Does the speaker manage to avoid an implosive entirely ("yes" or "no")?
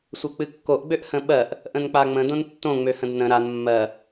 no